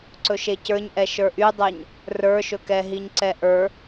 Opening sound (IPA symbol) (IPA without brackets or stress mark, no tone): ǀ